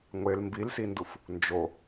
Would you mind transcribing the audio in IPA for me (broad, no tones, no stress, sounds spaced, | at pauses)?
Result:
ŋʷ e l m b i l s i n d u f | n d͡ʒ o